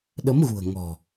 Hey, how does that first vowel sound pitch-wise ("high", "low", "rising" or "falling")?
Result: rising